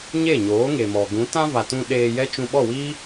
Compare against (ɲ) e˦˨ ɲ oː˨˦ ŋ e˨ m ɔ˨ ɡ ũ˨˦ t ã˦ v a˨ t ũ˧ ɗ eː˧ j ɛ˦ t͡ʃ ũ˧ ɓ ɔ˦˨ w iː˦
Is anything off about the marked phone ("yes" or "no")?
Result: no